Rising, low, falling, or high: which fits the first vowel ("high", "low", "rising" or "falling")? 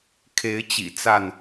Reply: rising